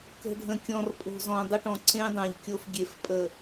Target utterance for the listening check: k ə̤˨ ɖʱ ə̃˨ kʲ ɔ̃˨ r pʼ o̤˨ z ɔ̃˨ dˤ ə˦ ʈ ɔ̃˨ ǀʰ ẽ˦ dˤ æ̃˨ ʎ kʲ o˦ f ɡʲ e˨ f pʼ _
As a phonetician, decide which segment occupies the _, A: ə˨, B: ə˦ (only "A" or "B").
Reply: A